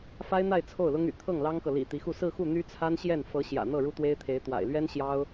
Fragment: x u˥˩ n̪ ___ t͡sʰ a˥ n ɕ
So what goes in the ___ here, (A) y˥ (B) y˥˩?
A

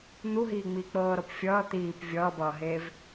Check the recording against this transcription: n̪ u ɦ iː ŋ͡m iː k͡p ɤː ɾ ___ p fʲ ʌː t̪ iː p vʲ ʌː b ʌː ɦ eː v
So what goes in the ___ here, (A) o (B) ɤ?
B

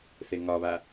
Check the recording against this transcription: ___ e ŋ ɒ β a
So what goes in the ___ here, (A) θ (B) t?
A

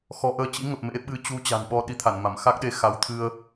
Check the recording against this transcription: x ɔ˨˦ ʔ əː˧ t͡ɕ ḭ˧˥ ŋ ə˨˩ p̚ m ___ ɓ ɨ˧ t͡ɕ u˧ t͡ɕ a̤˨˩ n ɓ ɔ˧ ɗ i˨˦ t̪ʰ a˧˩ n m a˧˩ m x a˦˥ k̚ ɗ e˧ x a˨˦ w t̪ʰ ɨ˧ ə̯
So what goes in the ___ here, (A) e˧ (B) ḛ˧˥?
B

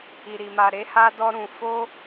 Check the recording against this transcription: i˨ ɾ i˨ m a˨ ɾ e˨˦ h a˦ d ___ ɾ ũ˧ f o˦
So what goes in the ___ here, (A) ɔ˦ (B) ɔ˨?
A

